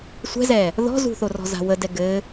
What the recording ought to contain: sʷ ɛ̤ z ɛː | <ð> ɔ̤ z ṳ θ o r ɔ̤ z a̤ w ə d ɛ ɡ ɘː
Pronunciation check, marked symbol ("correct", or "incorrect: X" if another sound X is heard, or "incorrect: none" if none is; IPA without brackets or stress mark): correct